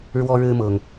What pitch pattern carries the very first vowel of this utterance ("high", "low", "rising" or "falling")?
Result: high